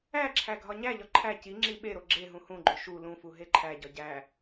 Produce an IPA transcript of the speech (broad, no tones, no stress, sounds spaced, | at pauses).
æ ǁʰ æ ɡʱ ɒ ɲ æ ʎ ɒ ǃʰ æ c i ŋ͡ǁ i ɓ e ɾ o ɡ͡ǁ e ɦ ũ h ũ ɡ͡ǃ o ʃ u l ũ f u ɦ e ǃʰ æ ɟ ɒ ɟ æ